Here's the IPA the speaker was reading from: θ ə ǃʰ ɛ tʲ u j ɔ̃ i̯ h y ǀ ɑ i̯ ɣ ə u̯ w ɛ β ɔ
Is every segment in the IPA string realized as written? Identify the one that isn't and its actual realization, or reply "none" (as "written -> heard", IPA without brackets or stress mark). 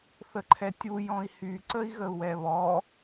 ɑ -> ə